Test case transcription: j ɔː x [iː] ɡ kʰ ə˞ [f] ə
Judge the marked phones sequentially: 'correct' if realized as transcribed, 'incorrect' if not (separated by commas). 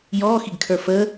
incorrect, correct